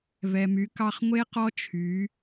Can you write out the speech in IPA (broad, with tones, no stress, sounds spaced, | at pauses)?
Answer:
v ɛ˩ m y˩˥ k ɑ˧ χ ŋʷ e˥ q ɔ˥ t͡ʃʰ y˩˥